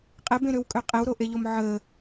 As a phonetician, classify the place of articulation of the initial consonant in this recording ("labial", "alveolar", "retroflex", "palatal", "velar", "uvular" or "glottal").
uvular